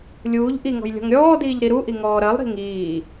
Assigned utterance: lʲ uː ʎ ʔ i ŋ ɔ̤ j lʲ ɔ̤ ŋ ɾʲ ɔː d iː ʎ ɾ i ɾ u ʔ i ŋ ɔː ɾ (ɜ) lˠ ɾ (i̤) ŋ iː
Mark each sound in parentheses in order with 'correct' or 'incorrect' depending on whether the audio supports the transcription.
correct, correct

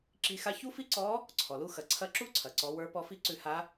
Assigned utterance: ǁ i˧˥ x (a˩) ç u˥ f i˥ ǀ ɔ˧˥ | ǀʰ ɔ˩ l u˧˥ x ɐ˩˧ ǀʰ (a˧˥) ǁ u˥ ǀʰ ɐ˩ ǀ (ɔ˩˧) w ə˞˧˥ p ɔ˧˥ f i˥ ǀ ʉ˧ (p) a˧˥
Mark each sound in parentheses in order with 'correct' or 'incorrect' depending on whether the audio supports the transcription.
incorrect, incorrect, correct, incorrect

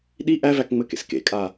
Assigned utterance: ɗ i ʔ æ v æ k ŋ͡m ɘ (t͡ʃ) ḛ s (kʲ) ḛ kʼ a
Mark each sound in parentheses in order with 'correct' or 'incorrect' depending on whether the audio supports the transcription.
incorrect, incorrect

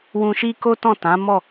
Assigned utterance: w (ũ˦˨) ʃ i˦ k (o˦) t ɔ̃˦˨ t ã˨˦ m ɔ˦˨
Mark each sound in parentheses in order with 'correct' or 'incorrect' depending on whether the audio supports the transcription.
incorrect, correct

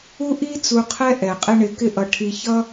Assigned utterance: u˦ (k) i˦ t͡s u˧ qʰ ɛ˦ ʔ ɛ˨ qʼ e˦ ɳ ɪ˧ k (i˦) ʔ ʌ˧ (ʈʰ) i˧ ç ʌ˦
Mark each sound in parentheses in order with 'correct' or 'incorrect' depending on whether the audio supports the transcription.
incorrect, incorrect, correct

